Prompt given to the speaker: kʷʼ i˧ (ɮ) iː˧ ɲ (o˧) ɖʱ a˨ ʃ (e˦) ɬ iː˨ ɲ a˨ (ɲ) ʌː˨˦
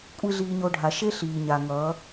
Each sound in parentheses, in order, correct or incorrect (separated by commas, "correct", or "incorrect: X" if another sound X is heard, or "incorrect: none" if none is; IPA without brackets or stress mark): correct, correct, correct, incorrect: ŋ